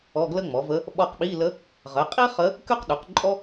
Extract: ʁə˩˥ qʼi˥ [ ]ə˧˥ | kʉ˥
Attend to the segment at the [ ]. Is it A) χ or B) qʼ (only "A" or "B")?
A